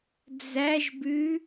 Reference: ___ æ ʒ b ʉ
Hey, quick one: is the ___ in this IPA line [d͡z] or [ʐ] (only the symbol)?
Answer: d͡z